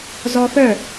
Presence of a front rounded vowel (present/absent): present